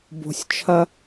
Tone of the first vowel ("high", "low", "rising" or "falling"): high